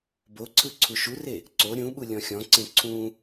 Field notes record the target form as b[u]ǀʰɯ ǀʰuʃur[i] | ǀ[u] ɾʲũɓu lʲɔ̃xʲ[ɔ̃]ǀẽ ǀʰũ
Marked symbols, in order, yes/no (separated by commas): no, no, no, yes